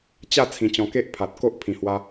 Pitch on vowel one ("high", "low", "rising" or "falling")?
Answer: falling